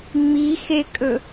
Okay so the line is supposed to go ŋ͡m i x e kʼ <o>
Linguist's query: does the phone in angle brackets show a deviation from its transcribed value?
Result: yes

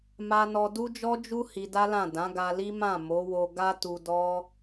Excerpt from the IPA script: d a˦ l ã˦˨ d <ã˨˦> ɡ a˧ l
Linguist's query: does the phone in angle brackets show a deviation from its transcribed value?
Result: no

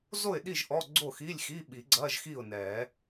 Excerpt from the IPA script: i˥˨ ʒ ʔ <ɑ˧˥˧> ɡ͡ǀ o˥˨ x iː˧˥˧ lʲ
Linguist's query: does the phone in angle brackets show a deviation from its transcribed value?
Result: yes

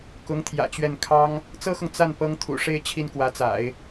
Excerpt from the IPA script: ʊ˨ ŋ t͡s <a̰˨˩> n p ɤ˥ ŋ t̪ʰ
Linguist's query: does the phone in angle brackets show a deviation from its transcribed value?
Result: yes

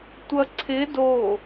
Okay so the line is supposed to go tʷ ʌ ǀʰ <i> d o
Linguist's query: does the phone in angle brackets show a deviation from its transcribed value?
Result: yes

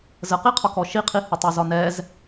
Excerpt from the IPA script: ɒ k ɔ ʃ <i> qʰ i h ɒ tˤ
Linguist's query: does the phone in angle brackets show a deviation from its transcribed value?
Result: no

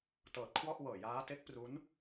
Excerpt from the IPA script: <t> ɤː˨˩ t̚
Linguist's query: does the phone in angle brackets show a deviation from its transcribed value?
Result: no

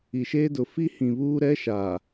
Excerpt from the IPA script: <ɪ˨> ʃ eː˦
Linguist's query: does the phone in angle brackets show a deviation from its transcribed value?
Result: yes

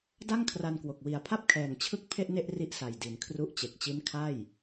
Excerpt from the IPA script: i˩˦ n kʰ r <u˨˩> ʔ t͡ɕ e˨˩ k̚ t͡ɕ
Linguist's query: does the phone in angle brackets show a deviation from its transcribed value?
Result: yes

